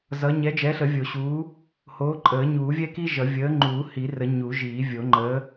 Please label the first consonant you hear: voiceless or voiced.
voiced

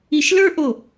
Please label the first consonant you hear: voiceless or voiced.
voiceless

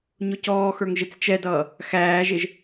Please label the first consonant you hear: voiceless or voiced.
voiced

